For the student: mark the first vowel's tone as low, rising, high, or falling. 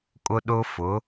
high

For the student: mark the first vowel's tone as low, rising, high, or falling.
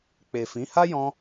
low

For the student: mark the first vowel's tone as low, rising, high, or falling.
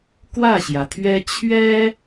falling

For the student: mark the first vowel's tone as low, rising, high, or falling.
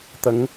rising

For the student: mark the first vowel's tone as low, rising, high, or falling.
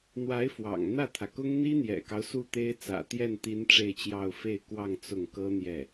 rising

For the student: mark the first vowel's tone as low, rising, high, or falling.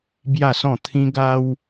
falling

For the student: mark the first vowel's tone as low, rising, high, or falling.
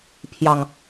low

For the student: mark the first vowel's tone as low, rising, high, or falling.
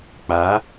rising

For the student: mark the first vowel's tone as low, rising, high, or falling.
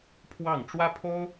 falling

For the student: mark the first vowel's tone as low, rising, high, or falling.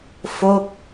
falling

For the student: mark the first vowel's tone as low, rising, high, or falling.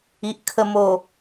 low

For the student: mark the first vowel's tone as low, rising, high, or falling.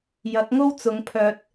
rising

